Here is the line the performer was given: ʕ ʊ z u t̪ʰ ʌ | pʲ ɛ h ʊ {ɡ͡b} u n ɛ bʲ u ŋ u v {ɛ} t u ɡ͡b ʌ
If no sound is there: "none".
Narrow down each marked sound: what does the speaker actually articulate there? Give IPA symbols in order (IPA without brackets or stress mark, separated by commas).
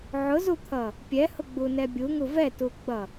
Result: ɡ͡b, ɛ